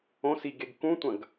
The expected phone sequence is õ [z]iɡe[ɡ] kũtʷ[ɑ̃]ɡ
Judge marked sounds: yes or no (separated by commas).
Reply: no, yes, no